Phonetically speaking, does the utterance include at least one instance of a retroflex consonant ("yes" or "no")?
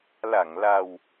no